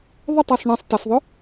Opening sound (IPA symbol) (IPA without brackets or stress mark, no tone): ðˤ